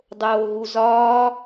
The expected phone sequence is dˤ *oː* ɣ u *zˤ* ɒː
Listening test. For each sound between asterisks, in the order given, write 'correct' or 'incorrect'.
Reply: correct, incorrect

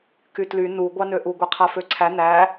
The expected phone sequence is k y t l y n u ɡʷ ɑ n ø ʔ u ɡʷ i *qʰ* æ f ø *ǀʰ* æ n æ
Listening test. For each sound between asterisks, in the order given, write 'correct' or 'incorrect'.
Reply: correct, correct

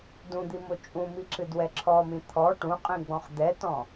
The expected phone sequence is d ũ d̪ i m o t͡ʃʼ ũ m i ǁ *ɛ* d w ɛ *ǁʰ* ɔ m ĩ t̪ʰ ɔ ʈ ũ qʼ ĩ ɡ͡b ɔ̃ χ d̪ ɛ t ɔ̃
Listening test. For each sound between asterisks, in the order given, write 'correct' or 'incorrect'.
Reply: incorrect, correct

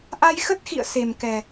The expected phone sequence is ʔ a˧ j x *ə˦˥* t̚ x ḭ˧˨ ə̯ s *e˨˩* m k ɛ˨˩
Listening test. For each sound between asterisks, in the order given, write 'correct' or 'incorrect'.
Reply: correct, correct

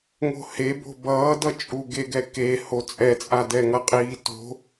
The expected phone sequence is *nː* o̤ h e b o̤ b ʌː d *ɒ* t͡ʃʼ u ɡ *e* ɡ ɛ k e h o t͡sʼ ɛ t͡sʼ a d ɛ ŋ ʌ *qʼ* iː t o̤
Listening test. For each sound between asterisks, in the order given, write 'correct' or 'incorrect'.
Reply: incorrect, incorrect, correct, correct

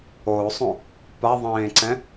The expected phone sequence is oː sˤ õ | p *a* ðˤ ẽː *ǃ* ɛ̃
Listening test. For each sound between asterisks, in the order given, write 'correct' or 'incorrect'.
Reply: correct, incorrect

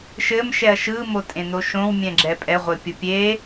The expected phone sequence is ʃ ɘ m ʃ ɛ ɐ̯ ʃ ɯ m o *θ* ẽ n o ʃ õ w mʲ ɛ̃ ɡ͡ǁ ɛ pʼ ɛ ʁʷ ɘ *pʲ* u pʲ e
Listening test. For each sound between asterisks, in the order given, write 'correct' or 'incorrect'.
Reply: incorrect, correct

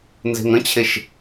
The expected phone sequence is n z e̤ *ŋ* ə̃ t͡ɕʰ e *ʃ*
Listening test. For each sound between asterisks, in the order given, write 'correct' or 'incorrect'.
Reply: correct, correct

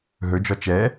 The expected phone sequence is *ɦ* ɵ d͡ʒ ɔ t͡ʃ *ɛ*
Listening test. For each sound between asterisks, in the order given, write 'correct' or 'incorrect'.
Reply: correct, correct

